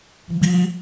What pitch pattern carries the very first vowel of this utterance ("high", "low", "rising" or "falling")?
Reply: high